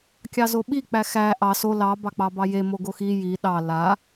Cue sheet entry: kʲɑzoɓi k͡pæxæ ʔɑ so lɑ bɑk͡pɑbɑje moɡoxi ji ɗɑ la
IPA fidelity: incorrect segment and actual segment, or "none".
none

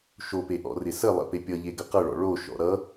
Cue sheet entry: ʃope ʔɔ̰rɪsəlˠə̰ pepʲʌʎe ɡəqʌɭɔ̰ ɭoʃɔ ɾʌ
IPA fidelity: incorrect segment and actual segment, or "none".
ɔ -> ɔ̰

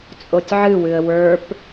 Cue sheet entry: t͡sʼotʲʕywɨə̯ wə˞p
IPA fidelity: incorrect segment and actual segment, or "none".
y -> ɨ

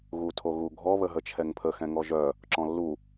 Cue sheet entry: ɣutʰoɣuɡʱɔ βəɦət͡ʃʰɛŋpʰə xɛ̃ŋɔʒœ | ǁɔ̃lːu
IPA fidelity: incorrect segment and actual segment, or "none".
none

